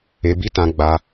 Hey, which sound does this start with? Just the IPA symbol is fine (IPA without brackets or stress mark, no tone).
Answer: e